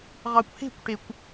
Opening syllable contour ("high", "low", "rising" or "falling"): low